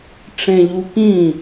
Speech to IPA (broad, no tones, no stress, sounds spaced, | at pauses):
ʈ͡ʂ ẽ ʎ u k ĩ